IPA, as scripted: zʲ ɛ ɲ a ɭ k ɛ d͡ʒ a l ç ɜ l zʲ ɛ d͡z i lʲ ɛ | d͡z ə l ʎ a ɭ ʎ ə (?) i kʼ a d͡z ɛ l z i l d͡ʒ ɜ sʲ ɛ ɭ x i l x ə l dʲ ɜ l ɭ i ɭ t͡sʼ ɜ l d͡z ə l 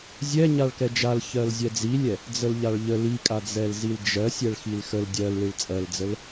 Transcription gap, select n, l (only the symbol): l